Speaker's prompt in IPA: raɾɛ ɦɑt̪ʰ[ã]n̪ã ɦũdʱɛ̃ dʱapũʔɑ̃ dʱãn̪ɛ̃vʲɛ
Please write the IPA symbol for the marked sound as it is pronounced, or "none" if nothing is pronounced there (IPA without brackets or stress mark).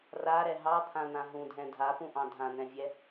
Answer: ã